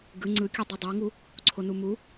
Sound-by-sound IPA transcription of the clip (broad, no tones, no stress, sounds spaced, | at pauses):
ɡ ɯ ŋ͡ǀ ɯ kʲ u dˤ i dˤ o ŋ u | ǀʰ o n u m u